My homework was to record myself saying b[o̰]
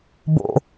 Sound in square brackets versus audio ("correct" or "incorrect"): correct